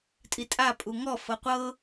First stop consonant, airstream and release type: ejective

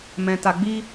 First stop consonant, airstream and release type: plain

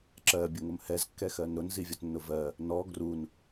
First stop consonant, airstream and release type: click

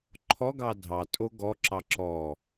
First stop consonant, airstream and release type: click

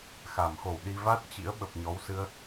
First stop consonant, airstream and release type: implosive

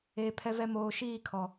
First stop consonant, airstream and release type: aspirated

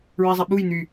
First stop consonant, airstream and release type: implosive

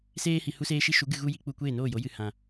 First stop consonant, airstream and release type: plain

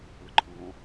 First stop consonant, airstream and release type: click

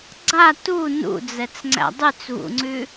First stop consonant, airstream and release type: click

